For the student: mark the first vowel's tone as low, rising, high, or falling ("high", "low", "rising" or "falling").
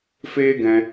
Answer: high